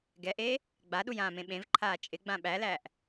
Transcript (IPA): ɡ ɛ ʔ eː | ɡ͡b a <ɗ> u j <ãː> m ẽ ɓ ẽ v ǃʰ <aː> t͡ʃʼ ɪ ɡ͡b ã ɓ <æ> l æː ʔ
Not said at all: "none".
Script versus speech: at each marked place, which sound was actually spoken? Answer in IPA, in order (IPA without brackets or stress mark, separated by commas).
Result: ɗ, ãː, aː, æ